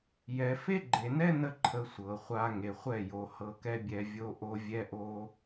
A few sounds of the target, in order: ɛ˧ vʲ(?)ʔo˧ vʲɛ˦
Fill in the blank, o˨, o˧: o˧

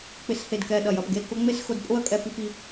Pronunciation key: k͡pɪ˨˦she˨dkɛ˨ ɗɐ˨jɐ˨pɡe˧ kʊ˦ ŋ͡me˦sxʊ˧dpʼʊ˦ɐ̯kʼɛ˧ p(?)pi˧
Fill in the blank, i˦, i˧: i˧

